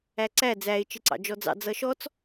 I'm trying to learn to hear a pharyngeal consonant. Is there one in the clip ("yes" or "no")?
no